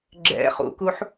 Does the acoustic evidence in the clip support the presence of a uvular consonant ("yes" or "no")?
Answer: yes